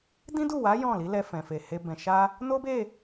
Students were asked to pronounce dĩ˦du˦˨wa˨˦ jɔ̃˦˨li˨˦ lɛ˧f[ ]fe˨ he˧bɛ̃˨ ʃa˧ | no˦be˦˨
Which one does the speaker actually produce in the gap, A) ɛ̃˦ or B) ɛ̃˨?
B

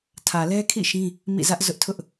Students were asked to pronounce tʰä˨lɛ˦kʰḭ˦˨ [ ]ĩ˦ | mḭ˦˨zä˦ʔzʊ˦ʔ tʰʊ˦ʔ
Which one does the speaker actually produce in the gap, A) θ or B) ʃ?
B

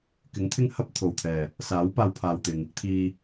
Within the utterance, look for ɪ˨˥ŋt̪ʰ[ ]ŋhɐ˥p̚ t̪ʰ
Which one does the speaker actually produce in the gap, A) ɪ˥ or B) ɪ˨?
A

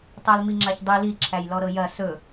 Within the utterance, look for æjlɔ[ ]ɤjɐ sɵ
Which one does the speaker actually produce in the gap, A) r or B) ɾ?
B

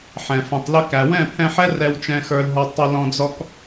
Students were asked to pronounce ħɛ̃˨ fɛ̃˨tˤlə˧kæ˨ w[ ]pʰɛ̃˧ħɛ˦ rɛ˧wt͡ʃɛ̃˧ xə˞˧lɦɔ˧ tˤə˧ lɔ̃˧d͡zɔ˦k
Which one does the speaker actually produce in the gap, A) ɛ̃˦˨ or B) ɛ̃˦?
A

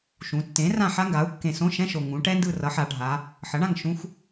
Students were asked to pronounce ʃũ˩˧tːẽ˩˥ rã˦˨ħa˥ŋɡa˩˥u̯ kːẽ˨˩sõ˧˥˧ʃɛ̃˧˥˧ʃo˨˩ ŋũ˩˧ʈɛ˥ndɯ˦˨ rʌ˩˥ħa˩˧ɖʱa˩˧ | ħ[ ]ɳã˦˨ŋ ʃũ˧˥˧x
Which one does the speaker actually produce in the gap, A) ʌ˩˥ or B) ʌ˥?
A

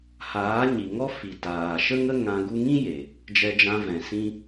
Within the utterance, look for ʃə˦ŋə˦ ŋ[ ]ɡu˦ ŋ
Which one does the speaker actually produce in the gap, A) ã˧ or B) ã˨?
A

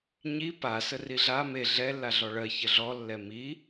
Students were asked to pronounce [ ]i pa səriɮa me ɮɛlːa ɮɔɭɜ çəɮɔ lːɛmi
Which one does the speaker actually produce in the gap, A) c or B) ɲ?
B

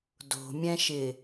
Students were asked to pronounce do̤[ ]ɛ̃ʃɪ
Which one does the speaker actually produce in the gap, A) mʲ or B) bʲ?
A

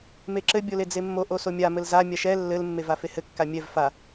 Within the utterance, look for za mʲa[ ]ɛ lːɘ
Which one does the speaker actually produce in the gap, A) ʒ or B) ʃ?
B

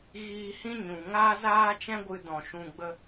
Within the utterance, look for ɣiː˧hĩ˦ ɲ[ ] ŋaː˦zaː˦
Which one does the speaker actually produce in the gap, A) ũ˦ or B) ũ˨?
B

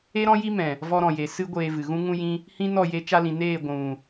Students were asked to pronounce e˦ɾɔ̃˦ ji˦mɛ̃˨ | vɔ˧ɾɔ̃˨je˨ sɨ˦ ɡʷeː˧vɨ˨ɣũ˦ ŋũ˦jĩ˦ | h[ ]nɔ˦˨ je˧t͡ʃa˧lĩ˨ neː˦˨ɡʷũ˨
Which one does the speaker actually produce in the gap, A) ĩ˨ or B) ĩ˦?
B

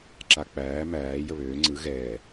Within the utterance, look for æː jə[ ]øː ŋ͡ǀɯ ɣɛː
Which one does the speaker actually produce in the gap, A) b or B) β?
B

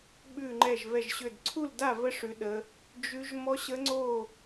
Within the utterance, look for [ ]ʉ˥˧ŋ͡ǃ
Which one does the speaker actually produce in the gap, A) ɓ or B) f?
A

